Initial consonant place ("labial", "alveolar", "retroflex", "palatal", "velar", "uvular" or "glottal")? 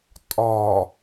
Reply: alveolar